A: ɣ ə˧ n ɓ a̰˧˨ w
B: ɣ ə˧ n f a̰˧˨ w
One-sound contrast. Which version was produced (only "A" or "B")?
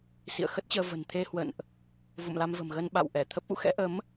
A